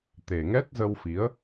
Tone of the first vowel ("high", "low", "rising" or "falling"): low